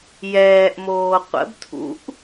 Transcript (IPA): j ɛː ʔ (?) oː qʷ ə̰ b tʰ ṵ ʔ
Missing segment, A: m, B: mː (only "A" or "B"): A